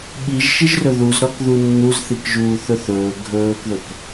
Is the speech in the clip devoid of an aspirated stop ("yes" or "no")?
yes